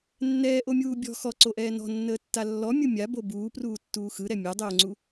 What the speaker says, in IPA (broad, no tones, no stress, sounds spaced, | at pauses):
nː ɛː ʔ o mʲ uː bʲ ɔ̤ x ɔ ǀ o ʔ ɛː n ɔ̤ nː əː tː a lː ɔ mʲ ɯ mʲ a b o b uː p r uː tː uː x ɯ ɾ ɛ mʲ a dˤ oː ŋ͡ǀ u